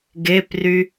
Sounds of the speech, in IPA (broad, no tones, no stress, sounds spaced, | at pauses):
ɡ e p r y